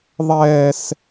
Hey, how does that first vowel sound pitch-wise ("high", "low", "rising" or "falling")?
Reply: high